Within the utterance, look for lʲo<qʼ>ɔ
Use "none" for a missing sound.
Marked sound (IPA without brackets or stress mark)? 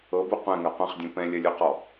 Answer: q